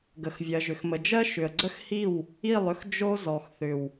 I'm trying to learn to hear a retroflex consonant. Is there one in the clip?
no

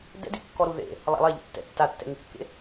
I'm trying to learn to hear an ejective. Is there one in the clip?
no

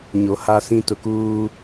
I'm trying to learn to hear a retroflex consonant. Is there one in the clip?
no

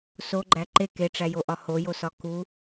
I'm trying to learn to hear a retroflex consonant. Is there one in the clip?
yes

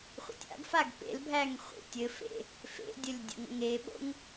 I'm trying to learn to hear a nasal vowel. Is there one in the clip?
no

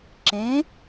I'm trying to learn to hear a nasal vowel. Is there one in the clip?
yes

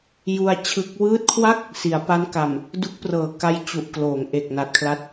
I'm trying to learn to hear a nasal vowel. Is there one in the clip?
no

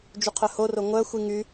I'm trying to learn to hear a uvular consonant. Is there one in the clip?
yes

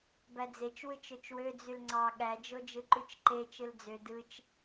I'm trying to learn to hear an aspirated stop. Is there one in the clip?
no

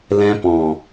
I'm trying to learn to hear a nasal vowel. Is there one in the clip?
yes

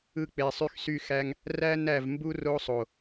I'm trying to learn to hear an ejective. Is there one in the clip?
no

